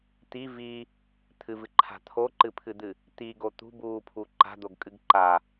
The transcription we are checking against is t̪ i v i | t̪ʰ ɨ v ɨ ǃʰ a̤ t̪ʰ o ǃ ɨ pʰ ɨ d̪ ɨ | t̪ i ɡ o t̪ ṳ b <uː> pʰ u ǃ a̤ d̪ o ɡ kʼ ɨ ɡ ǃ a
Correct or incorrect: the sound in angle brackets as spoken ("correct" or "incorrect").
correct